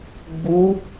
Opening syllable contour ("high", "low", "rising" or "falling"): rising